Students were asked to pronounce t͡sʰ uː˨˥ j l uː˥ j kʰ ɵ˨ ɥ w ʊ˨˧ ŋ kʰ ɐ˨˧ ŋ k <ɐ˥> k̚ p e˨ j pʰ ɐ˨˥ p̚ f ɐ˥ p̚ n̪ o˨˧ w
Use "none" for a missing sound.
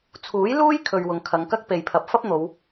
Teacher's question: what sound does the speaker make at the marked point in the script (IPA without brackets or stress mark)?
ɐ˥